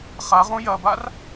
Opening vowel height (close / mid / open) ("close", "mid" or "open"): open